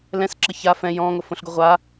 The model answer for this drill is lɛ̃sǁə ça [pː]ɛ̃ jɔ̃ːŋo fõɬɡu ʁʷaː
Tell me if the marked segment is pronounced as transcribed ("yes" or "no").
no